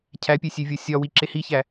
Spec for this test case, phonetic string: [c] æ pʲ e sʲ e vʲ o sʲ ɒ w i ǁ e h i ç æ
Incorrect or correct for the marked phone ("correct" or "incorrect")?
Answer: incorrect